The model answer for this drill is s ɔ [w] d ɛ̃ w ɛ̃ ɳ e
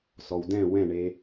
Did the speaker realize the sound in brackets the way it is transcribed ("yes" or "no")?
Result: yes